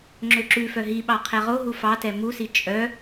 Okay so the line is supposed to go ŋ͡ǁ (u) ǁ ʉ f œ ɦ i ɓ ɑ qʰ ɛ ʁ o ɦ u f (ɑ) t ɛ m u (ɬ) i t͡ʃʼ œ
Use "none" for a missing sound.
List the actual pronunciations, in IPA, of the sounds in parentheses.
ø, ɑ, s

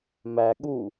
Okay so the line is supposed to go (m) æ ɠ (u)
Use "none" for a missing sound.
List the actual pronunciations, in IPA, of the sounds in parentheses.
m, u

